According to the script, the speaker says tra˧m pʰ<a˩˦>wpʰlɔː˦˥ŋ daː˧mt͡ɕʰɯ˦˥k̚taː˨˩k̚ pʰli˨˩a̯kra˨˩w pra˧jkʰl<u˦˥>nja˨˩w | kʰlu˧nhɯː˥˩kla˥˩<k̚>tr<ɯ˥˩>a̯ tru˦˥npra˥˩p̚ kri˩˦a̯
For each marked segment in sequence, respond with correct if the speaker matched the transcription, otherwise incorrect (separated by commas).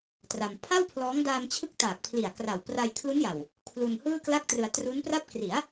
incorrect, correct, correct, incorrect